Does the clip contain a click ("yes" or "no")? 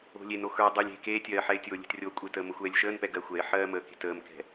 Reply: no